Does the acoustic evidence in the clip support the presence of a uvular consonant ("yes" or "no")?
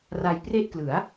no